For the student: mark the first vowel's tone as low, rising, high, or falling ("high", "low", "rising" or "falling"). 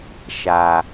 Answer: low